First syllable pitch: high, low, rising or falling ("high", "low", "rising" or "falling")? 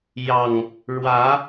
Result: low